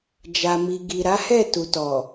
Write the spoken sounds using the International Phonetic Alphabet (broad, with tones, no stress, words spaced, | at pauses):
d͡ʒa˨mi˨ ɡi˨ɾa˨˦hɛ˦˨tu˨ tɔ˨